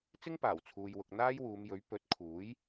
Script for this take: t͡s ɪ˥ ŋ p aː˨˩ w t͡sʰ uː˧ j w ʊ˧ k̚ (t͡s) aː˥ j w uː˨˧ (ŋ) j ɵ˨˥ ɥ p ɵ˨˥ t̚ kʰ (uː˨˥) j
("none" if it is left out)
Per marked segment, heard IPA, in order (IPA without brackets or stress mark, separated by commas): n̪, m, uː˨˥